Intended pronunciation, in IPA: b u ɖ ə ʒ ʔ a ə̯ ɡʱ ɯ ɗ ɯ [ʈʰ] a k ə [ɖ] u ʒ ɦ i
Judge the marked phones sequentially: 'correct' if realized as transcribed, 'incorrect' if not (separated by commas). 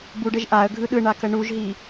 incorrect, incorrect